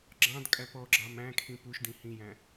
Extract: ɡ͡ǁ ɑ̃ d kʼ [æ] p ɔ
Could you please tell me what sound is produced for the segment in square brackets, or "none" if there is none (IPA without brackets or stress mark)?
æ